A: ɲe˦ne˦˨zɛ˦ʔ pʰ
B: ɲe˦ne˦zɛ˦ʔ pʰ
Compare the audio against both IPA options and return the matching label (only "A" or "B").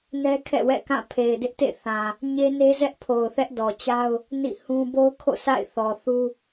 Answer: B